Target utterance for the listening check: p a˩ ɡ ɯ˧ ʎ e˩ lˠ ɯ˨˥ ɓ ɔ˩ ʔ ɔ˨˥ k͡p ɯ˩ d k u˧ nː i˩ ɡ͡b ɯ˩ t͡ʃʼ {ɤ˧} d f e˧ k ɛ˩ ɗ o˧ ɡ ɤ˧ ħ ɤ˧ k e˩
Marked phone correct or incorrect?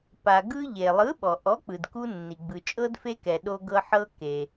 correct